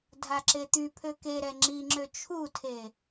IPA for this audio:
dʱ a ǁ e t̪ y pʰ ø k e ɾ ɛ ŋ͡ǁ i ŋ͡ǁ ø t͡ʃʰ u tʰ e

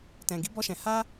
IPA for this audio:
t ɛ̃˨ ɡ i˨˦ b ɔ˧ ʃ ɛ̃˨ h a˧

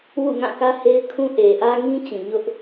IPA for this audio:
w ṵ˦˨ ŋ ã˦˨ k ä˦ h e˦ ɪ̯ kʰ ũ˦ ʔ e˨ ʔ ä˦ ŋ ĩ˦ t͡ɕ ĩ˨ ɲ ʊ˦ ʔ

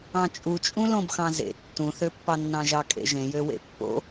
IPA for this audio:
ɑ̃ t͡ʃʼ u t͡ʃʼ ũ l õ b x ɑ̃ z ḛ tː ũ θ ø pː ɑ nː ɑ̃ ʒ ɑ kʼ ḛ ʒ ẽ j ø w ḛ pː o̰

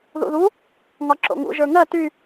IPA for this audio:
ð ṵ ð u | ŋ ɒ ǁ o̰ ŋ ṵ ʒ ə˞ ŋ ɜ t y

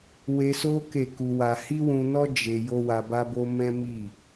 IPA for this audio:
w e˧ s o˦ k e˦˨ k u˧ w a˧ h i˦ w ũ˧ n ɔ˦ d͡ʒ e˧ j o˦ w a˧ b a˦ b o˦ m ɛ̃˦ m i˦˨

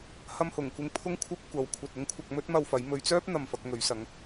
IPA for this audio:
h ɐ˧ m h ʊ˨˩ ŋ kʷ ɪ˧ ŋ pʰ ʊ˥ ŋ kʷʰ ɐ˥ p̚ kʷ ɐ˨˥ w kʷʰ ɐ˨ t̚ ʊ˥ ŋ kʷʰ ɐ˧ k̚ m ɵ˥ t̚ m ɐ˧ w f ɐ˨˥ j m ɵ˨˧ ɥ t͡s œː˥ p̚ n̪ ɐ˧ m f ɐ˨˥ k̚ ŋ ɵ˨˥ ɥ s ɐ˨˥ ŋ

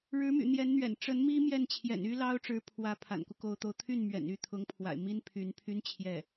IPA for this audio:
ɻ ɻ̩˧˥ m y̰˨˩ n̪ j ɛ˧˥ n n̪ ɥ ɛ̰˨˩ n ʈ͡ʂ ə˧˥ n m i˥ m j ɛ˥˩ n t͡ɕʰ j ɛ̰˨˩ n y˥ l ɑ˥ ʊ̯ ʈ͡ʂ ɻ̩˧˥ pʰ w ä˧˥ pʰ a̰˨˩ n k u˦ k o˧˥ ʊ̯ t̪ o˧˥ ʊ̯ t̪ʰ y˥˩ n m ɥ ɛ̰˨˩ n y˥˩ t̪ʰ ʊ˧˥ ŋ pʰ w a̰˨˩ ɪ̯ m i˥ n pʰ y˧˥ n pʰ y˥ n t͡ɕʰ j ɛ˥˩

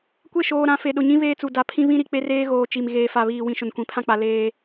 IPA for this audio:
kʷ e˦˨ ʃ oː˨ ɾ ã˨˦ f e˨ ɗ ʊ˨ ɲ ĩ˦ β eː˦ t͡s u˨ d a˨ pʰ ĩ˦ β ĩ˦ ɾ i˨ k͡p e˦ r eː˦ ɣ oː˨ t͡ʃ i˨ m ɣ eː˨ f a˨ β iː˨ w ĩ˨ ʃ ʊ˨ n kʷ ĩ˨ pʰ ã˦ k͡p a˨ l eː˦

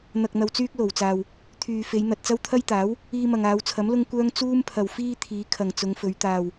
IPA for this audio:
n̪ ɐ˨ k̚ n̪ ɐ˨ w t͡s yː˥ k̚ l o˨˩ w t͡s aː˨ w | t̪ʰ yː˨ f e˨˧ j n̪ ɐ˨ t̚ t͡s ɐ˥ w t̪ʰ ɐ˥ j t̪ aː˨˥ w | iː˧ m ɐ˨ ŋ aː˨˧ w t͡sʰ ɐ˨˥ m l ʊ˥ ŋ kʷ œː˥ ŋ t͡s uː˥ m pʰ ɐ˨ w f iː˥ t̪ʰ iː˨˧ kʰ ɐ˨ ŋ t͡s ʊ˨˧ ŋ f ɵ˨˧ ɥ t̪ aː˨ w

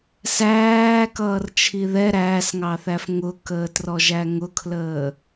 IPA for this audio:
s æː k ʌː r t͡ʃʰ i ð ɛ ɾ æː s ŋ ɑ θ æ f ŋ ʊ k əː t r ɔ ʒ æ ŋ ʊ kʰ l əː

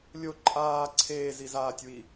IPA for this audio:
lʲ o ǃʼ aː ǀʰ eː z i z aː tʲ w i

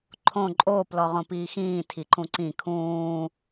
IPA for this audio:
ǃʰ õ ǃʼ o p l ɔ ʁ õ p iː x ĩː tʰ i ǃ ũ ǀ ĩ kʰ ũː

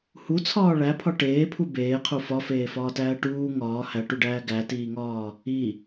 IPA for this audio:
h u t͡sʰ ɒː ɭ æ pʰ ɒ ʈ eː pʰ u b eː qʰ u f ɒ f eː f ɒː t æː ʈ uː ŋ ɒː h æ ʈ u ɖ æː ɡ æ t iː ŋ ɒː | i

